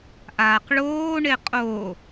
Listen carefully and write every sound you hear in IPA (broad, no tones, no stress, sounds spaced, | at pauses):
ʔ aː q ɭ oː ɳ e qʼ o